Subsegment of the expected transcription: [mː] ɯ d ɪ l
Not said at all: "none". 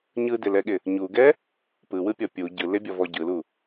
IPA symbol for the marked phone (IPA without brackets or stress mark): ɲ